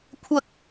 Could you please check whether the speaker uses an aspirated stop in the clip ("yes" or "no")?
yes